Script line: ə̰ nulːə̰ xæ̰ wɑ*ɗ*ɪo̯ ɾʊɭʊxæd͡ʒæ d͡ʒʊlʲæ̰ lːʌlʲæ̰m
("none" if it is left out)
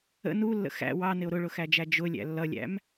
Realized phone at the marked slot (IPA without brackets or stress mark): n